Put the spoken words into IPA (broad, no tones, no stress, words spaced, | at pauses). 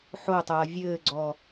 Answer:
ħotˤɐː vʲɘːɡ͡ǀɔ